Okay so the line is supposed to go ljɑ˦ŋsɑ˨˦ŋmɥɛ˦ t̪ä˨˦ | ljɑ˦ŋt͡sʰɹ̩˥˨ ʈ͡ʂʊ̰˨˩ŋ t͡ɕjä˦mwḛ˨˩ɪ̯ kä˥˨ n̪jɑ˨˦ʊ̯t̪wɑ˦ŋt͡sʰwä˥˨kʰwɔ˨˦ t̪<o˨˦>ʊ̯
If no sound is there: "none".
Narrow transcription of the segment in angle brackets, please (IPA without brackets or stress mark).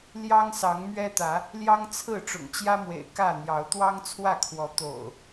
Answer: o̰˨˩